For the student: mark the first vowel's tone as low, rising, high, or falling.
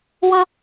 high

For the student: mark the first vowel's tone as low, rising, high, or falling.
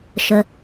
low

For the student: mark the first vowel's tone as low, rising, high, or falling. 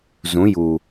rising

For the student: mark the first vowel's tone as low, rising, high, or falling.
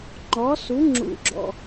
rising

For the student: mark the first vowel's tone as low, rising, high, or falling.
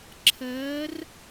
rising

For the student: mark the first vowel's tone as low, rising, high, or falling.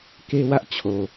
high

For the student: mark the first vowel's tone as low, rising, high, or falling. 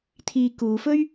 low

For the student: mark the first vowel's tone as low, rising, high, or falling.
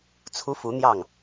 rising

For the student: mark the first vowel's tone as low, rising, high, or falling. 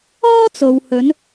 high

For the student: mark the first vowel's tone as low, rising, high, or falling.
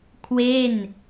falling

